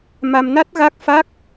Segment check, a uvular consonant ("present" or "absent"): absent